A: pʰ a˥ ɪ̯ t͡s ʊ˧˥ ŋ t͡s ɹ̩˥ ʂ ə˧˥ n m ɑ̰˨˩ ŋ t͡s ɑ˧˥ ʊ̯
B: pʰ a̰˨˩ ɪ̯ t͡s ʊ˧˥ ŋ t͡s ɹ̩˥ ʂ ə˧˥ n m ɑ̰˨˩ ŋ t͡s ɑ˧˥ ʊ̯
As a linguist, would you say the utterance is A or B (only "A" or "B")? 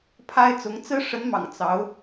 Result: A